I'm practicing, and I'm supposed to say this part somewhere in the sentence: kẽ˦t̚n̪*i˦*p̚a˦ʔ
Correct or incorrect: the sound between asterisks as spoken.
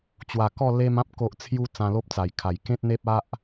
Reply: incorrect: e˦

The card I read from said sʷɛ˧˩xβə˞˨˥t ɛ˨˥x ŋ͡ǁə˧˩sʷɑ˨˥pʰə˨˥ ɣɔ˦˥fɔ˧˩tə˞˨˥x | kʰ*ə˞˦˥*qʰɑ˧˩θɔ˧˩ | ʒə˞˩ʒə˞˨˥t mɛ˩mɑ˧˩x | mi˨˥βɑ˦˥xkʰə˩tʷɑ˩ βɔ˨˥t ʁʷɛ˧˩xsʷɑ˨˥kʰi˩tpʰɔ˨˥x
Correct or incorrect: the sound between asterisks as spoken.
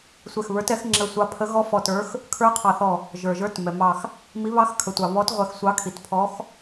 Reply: correct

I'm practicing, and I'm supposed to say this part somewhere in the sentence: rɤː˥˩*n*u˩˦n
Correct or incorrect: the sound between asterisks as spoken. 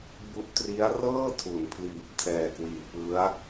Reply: incorrect: tʰ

